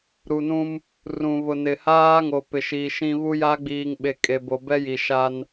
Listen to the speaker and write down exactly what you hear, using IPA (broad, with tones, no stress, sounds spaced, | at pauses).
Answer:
ɾ u˨ n ũ˦ m | r ũ˨ β ʊ˨ n ɪ˨ h aː˦ ŋ o˨ p ɪ˨ ʃ iː˨ ʃ ĩ˨ β u˦ j a˦ ɡ͡b iː˨ ŋ ɓ e˨ kʼ e˨ b o˨ b ɛ˦ j i˨ ʃ a˦ n